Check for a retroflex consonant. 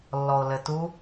absent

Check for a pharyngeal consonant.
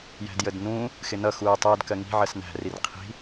present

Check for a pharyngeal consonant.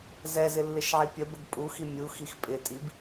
present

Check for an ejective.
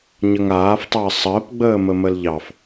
absent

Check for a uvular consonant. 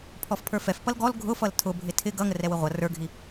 present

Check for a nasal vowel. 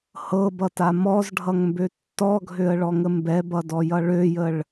absent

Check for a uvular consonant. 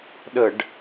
absent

